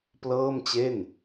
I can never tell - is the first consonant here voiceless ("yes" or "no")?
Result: yes